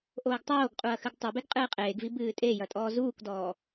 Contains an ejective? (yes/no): yes